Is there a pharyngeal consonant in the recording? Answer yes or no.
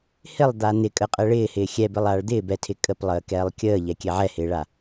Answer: yes